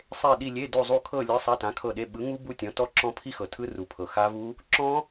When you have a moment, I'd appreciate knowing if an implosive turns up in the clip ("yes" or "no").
yes